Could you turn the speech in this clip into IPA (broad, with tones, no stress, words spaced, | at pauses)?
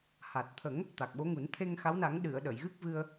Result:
ha˨˩t̚t̪ʰə˨˩˦ŋ | t̪a˨˩k̚ɓo˧˥ŋu˨˩˦n t̪ʰe˧ŋxa˧˥wna˨˩˦ŋɗɨ˨˩˨ə̯ ɗə˨˩˨jɣɨ˦˥k̚ vɨ˧ə̯